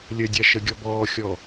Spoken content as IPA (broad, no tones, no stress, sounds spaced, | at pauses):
lʲ ə dʲ a ʃ ə ɡʲ ɔ b ɔː xʲ ɔ